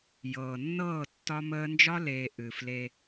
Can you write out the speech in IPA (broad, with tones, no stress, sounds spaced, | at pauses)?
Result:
j ɤː˨ nː ɤː˦˨ tː ɒ˦ m əː˦ n d͡ʒ ɒ˦ l eː˨ ʔ ɨ˨ f l e˦